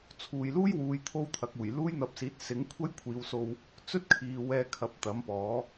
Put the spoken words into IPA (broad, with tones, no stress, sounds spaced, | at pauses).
t͡sʰ uː˨ j l uː˥ j w uː˨˧ j t̪ʰ o˥ w t̪ʰ ɐ˨˥ k̚ uː˨˩ j l uː˥ j n̪ ɐ˧ p̚ s iː˨˥ t̚ s ɪ˨˥ ŋ kʷʰ ɐ˥ j kʷʰ iː˨˧ w s o˧ w | t͡s ɵ˥ t̚ kʰ iː˨ w ɛː˧ kʰ ɐ˨˥ p̚ t̪ ɐ˨˥ m p ɔː˨˥